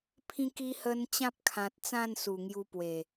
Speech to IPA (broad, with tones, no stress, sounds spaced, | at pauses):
pʰ ĩ˧ k i˧ h ə˧ n t͡ɕ ã˦ p̚ kʰ ã˨ t̚ t͡s ã˥˧ n s u˨˩ ŋ j u˧ p w e˨˩